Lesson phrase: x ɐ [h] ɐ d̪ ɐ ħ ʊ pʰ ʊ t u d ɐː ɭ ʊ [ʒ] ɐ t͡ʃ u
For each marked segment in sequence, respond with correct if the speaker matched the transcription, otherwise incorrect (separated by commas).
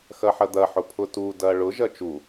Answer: incorrect, correct